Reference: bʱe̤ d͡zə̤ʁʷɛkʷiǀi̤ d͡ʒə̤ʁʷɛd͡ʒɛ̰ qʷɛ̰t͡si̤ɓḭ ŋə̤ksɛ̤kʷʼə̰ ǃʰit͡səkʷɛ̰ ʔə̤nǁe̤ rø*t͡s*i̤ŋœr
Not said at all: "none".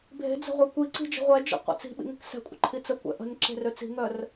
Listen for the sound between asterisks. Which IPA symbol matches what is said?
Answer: t͡s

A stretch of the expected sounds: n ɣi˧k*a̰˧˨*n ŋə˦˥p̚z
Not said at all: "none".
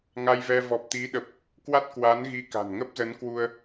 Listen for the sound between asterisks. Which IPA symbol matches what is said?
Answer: a̤˨˩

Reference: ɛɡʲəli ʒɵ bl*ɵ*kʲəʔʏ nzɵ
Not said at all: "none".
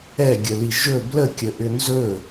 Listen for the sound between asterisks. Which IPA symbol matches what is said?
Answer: ə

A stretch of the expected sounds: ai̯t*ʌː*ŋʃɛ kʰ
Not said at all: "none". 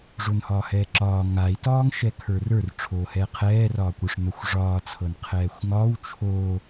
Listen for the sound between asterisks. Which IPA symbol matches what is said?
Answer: ɒː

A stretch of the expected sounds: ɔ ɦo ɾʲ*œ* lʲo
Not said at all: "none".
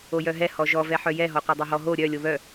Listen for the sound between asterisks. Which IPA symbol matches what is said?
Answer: œ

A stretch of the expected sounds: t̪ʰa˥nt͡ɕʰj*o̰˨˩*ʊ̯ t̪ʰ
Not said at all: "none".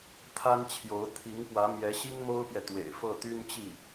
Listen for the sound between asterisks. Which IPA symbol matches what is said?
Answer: o˧˥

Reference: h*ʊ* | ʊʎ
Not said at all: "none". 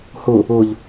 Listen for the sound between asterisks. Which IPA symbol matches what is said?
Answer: ʊ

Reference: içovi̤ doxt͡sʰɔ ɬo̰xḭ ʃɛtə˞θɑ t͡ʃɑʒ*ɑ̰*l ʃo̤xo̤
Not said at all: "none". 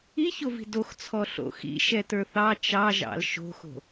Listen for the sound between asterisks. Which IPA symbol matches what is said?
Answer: ɑ̰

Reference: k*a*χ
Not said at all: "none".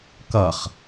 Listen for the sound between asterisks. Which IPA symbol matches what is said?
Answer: ʌ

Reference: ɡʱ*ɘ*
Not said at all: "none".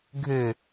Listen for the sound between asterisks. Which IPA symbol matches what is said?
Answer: ɘ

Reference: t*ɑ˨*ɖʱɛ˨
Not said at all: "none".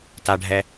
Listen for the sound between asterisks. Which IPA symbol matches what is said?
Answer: a˨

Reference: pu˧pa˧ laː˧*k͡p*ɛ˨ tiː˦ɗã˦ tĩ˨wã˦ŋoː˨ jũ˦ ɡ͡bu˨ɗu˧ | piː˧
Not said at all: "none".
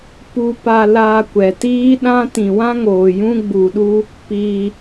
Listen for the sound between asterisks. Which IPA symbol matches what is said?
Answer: kʷ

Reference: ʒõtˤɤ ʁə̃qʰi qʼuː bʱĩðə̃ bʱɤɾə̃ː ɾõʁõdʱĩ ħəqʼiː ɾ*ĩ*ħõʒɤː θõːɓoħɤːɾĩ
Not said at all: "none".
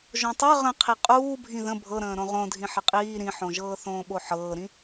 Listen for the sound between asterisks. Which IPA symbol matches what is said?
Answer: ĩ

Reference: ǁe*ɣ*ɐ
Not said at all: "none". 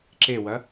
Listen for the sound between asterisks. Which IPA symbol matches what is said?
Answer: w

